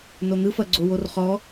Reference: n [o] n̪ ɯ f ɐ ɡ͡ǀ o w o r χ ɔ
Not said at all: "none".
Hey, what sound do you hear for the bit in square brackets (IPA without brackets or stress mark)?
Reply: o